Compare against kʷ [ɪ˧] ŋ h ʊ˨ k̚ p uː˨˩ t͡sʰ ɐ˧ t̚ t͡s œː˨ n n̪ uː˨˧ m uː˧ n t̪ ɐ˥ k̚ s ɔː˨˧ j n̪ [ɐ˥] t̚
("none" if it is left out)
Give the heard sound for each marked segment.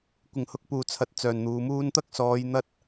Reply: ɪ˨˩, ɐ˥

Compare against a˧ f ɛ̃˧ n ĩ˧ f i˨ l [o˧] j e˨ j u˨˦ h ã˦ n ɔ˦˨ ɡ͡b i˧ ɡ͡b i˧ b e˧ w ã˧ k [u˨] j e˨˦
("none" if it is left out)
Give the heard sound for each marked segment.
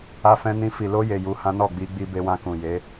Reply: o˧, ũ˨

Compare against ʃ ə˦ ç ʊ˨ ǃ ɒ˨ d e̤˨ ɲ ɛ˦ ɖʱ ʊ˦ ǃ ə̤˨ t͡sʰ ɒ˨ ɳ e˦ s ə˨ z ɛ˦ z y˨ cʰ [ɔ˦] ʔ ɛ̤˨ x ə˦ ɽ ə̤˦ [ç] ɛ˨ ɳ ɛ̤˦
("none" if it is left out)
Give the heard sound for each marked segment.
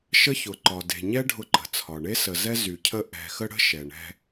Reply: ə˦, ʃ

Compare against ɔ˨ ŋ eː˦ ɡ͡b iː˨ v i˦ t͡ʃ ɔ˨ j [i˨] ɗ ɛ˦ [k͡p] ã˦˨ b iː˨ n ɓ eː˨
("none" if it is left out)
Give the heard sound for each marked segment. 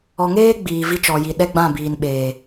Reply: i˨, ɡ͡b

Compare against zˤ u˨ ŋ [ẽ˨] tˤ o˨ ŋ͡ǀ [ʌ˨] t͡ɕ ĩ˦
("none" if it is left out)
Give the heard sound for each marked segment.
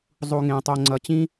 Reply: ẽ˨, ʌ˨

